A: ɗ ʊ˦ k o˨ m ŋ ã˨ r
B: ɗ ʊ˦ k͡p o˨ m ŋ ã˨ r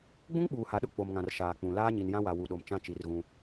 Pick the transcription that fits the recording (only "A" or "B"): B